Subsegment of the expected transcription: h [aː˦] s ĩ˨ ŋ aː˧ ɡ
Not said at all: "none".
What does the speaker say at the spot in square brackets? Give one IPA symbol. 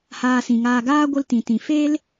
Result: aː˧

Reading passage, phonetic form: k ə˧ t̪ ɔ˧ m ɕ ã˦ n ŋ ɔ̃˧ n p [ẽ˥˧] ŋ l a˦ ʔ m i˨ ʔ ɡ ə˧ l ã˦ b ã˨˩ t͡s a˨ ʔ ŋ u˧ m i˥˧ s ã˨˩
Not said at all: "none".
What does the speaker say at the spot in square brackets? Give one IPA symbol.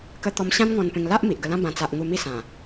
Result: ẽ˧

